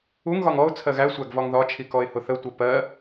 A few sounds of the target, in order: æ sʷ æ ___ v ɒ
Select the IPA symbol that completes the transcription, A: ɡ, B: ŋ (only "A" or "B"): A